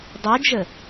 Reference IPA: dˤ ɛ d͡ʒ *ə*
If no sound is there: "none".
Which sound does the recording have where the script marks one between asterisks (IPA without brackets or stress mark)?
ə